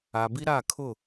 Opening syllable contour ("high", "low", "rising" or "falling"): low